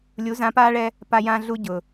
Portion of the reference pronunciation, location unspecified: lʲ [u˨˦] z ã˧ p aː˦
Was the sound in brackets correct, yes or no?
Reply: yes